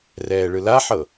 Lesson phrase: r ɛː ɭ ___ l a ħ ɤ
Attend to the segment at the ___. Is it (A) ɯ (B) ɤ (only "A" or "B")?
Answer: A